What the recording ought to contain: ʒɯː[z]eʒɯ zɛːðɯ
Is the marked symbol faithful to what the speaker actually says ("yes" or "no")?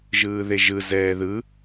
no